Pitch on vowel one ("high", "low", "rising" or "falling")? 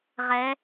rising